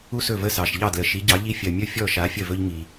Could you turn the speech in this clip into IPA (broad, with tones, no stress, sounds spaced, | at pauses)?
u˦ s ɵ˦˨ v ə˦˨ s ɑ˨ ʃ ʎ ɑ˦˨ d l ə˨ ʃ i˨˦ ɟ ɑ˨˦ ʎ i˦ fʲ ɜ˨ mʲ ɵ˦˨ fʲ ɔ˦˨ ʃ a˨˦ fʲ ə˦˨ v ɵ˦ ʎ ŋ i˨